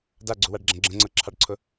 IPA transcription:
d a ɡ͡ǀ u w a ɖ ɡ͡ǁ ə̃ ɡ͡ǁ ə̃ ŋ͡ǀ ɤ ǁʰ ɑ ɖ ǀʰ ʊ

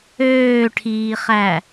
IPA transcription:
øː ʈʰ iː χ æ

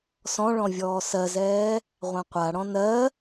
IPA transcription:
s ɔ̃ ɭ ɔ̃ vʲ ɔː s ɜ z ɛː | ʁʷ ã qʷ a ɽ ɔ̃ n ɜ

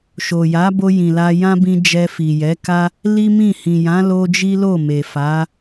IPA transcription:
ʃ o˨ j a˨˦ b o˧ j ĩ˨ l a˧ j ã˦ b ĩ˧ d͡ʒ ɛ˧ f i˨ j ɛ˨˦ k a˦ | l i˦ m ĩ˦˨ h ĩ˨ j ã˨˦ l o˧ d͡ʒ i˦ l o˦˨ m e˨ f a˨˦

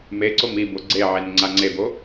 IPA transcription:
m e ǀ o m i b o ɡ͡ǀ e ʕ e n ŋ͡ǀ a ŋ͡ǀ e b o

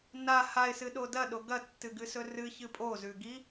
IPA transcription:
n a h a ɪ̯ s ɨ ɗ o d ɐ ɗ o ɡ ɐ tː ɨ ɡ ɨ s ɵ r ɨ ç ɨ pʼ o z ʉ ɡ i

